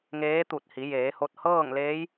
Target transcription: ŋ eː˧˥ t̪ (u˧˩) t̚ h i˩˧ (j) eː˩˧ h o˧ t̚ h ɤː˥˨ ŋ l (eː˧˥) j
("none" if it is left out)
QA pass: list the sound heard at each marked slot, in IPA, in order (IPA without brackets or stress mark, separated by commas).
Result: u˧˩, j, eː˧˥